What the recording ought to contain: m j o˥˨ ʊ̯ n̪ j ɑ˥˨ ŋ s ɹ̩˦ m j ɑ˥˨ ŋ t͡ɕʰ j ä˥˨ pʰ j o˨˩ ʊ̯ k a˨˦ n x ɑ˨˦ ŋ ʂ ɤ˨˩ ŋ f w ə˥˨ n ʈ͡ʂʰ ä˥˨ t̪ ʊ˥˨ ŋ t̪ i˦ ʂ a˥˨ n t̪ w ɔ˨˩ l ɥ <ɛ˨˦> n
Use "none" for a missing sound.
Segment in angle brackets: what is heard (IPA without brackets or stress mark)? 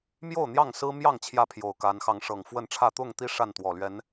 ɛ˨˦